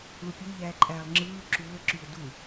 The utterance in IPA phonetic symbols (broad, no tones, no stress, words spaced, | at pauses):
ɭupʲe ʎæːǃʼæːlˠŋ͡ǁɯː ǁuːə̯ǁyʊ̯ du